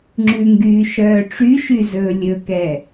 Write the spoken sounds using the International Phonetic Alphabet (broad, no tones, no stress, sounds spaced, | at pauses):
ŋ͡ǁ ʉ ŋ ɡ yː ʃ œː ʈ͡ʂ y ʃ y z ɵː lʲ ɵ k ɛ